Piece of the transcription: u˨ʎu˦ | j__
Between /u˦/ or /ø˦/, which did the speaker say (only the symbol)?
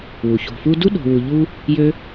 ø˦